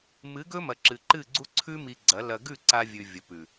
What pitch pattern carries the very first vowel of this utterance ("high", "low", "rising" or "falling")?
rising